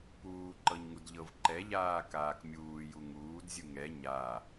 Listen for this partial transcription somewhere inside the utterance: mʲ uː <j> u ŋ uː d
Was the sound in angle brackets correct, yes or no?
yes